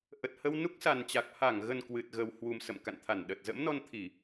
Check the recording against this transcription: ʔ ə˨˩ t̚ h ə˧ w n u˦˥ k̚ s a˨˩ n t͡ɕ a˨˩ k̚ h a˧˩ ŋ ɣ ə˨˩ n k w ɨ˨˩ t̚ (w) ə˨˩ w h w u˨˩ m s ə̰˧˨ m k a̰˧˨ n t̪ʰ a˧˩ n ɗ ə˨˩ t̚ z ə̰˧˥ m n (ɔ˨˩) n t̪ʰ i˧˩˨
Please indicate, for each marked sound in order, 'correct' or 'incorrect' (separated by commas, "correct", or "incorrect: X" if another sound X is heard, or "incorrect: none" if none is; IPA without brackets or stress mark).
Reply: incorrect: ɣ, incorrect: ɔ˧